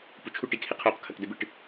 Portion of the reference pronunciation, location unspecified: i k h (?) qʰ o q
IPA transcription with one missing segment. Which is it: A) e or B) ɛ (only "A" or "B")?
A